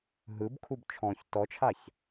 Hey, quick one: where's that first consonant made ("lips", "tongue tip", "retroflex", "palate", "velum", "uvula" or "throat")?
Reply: throat